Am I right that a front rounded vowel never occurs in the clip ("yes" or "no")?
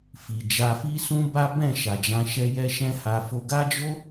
yes